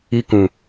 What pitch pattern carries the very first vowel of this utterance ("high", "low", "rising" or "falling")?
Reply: high